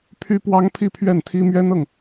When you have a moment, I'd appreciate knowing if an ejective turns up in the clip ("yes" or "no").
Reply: no